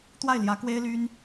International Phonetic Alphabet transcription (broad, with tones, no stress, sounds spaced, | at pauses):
t̪ w a˥˩ ɪ̯ l j ä˧˥ k w e˥ ɪ̯ l y˥ n